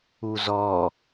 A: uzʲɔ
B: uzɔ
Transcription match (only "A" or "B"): B